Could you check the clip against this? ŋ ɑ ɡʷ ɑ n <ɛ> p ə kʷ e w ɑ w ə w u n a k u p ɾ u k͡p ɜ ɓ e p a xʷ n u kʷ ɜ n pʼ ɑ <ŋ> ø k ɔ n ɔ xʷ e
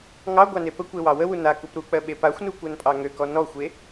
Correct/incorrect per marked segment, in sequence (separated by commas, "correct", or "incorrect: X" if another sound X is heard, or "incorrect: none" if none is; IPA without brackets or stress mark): incorrect: e, correct